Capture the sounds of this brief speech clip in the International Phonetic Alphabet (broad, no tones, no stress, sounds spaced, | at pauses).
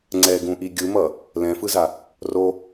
ŋ͡ǀ ɛ ɡ ũ ʔ i ɡʲ ɯ m ʌ | l ɛ̃ f ɯ z a | r o